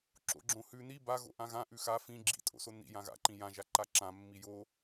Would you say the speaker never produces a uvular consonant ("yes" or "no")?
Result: yes